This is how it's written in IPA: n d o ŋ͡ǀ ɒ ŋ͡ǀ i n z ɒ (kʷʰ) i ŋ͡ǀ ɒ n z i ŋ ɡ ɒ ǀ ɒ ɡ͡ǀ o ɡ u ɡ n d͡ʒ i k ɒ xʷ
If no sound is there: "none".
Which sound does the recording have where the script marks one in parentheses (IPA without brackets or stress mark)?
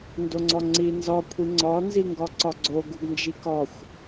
kʷʰ